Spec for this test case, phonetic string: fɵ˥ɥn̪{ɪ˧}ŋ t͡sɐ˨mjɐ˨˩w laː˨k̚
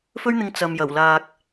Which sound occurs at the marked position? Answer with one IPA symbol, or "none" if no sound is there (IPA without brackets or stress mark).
ɪ˧